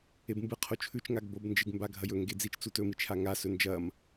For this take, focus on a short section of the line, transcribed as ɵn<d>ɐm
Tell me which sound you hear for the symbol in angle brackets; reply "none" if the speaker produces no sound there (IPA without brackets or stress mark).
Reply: d͡ʒ